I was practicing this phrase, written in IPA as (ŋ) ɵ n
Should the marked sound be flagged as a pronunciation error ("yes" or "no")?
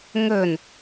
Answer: no